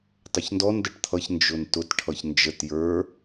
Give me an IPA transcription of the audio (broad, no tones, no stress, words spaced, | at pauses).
tˤəçndɔn dəʈt̪ʰʌç nd͡ʒʊntʊt ʈʰʌçnd͡ʒət jə˞